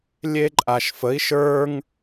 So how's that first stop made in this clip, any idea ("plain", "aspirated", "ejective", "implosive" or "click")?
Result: click